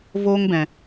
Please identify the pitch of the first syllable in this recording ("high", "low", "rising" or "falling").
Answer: high